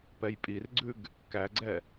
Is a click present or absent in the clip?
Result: present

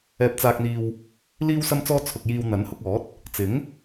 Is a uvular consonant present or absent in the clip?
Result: absent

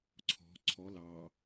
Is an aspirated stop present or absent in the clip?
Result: present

